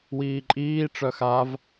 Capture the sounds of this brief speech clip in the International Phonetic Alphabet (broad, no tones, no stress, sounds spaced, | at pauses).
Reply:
w iː ǃʼ iː ʈ͡ʂ œ x a v